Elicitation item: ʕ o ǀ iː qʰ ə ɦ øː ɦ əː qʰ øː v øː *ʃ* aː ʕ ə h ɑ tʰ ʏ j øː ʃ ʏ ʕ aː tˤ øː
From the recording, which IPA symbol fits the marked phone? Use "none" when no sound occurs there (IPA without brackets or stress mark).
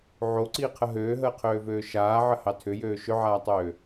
ʃ